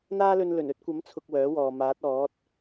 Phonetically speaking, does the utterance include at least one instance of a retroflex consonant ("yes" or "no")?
no